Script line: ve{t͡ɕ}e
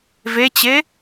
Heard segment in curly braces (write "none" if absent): t͡ɕ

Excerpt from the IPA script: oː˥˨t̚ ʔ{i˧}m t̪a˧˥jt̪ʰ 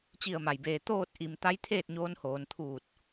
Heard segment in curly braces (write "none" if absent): i˧˩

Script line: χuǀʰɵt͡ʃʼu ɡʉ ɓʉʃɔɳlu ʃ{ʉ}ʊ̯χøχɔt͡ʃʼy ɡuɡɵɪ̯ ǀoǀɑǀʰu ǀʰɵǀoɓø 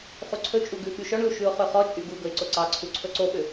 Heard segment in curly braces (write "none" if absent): ʉ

